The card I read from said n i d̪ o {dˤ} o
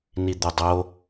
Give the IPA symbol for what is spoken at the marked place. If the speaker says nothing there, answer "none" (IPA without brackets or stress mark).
dˤ